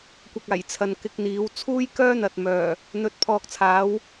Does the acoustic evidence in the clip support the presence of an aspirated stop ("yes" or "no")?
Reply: yes